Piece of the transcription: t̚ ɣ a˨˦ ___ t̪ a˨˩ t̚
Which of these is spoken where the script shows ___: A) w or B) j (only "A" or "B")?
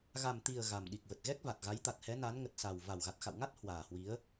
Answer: B